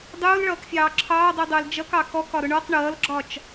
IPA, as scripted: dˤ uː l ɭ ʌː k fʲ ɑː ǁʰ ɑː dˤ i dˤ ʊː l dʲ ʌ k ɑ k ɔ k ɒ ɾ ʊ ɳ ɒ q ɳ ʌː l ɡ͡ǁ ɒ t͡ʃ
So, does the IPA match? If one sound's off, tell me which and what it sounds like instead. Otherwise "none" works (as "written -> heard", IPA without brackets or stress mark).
dʲ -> d͡ʒ